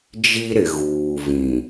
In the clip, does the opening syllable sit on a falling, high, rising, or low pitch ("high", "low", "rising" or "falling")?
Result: high